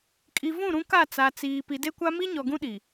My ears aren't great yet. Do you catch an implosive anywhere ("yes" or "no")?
yes